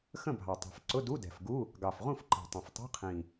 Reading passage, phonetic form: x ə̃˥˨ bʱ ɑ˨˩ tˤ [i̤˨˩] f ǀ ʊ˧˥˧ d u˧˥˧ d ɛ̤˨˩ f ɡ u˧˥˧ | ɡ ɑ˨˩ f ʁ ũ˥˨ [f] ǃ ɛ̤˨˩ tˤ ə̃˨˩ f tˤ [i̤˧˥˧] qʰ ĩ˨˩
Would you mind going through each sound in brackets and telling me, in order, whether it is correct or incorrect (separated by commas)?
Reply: correct, correct, correct